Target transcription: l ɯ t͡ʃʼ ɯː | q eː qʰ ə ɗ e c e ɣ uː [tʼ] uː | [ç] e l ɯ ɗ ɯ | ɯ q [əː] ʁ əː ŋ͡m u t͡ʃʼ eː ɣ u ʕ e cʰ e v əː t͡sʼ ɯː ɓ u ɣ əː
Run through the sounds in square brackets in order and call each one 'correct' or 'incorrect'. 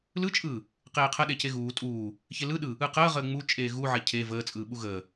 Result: correct, correct, correct

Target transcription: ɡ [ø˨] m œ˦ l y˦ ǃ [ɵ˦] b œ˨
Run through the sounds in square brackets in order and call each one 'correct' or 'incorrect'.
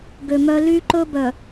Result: correct, correct

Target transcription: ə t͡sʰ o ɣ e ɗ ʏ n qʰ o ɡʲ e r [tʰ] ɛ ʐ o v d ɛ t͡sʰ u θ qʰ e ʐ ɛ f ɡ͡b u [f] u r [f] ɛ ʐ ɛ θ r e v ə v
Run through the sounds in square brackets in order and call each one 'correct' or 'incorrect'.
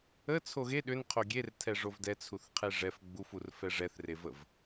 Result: correct, correct, correct

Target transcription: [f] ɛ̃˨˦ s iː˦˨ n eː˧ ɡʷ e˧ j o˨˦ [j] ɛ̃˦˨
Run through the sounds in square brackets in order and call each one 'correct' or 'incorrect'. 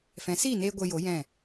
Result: correct, correct

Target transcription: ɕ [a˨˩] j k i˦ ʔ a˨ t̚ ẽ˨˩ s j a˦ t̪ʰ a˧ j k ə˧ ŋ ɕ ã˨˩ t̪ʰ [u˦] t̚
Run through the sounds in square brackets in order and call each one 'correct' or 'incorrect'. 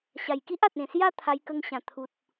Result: correct, incorrect: u˨

